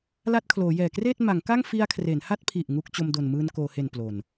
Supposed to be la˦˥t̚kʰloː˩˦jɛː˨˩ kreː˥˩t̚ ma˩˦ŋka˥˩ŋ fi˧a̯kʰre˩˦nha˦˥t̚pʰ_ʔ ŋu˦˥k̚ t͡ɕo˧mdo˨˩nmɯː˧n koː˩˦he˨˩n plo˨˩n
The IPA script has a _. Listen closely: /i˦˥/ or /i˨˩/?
i˨˩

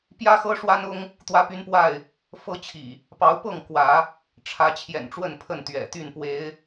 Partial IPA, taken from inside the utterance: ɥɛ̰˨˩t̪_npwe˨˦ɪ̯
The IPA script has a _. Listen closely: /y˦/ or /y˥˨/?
y˥˨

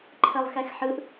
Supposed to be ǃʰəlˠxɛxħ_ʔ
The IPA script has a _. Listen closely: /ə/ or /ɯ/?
ɯ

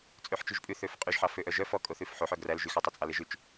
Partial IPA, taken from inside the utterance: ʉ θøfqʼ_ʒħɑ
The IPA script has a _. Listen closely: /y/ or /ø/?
y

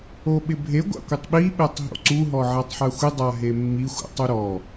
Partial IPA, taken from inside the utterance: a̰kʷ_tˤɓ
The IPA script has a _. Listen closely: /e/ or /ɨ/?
e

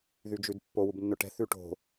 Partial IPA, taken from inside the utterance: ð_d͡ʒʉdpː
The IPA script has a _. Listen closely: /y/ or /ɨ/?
y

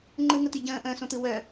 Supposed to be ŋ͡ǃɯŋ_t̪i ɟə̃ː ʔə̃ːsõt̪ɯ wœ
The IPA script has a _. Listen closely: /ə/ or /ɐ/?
ə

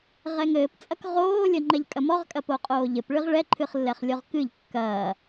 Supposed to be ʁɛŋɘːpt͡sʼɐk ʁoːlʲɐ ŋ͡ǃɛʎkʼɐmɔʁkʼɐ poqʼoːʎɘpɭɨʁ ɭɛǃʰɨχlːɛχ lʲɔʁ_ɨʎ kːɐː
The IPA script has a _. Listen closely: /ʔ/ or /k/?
k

